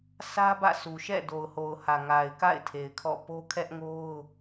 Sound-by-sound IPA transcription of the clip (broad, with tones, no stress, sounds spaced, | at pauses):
s ä˦ b ä̰˦˨ s u˨ ʃ ɛ̰˦˨ d o˨ ʊ̯ h o˨ ʊ̯ h ä˨ ŋ a˨ ɪ̯ k a̰˦˨ ɪ̯ tʰ e˨ ɪ̯ kʰ ɔ̰˦˨ p o˦ kʰ ɛ˦ ʔ ŋ o˦ ʊ̯